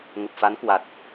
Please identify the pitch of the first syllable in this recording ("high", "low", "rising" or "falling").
low